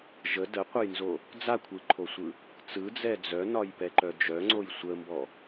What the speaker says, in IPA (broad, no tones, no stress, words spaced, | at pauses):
ʒə dəqʷəjnzo | d͡zakʷʰɯǃʰosʷɯ | t͡sɯd͡zɛ d͡zœnɒjpɛǃœ d͡ʒœŋ͡ǀoj sʷəmbɔ